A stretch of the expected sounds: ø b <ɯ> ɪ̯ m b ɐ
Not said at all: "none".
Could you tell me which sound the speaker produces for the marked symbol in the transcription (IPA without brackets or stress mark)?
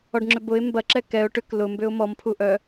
ʊ